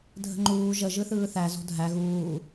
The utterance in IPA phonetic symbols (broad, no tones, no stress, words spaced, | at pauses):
dʱə̤ŋ͡ǃuː ʒə ʒɯθɯːθæ zo̤dʱæ ɣuː